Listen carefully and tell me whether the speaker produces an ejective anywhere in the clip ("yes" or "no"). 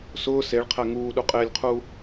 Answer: yes